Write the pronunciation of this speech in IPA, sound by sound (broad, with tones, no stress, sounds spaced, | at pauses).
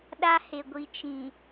ɗ a˦ h e˨ ɡʷ i˨ t͡ʃ ĩ˨